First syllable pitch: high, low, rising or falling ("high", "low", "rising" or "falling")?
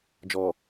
low